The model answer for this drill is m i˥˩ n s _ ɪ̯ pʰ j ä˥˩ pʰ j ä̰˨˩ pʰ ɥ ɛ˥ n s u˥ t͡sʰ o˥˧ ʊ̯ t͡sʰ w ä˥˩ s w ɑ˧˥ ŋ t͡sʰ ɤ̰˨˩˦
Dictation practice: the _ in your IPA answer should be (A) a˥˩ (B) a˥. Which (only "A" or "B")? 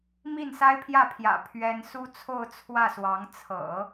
B